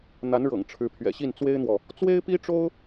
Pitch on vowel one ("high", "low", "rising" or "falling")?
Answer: rising